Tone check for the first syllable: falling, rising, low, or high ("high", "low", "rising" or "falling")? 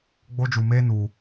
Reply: high